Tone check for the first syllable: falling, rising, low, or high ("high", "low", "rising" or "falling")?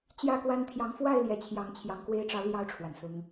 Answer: falling